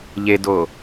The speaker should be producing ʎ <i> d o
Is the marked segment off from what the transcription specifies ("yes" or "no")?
yes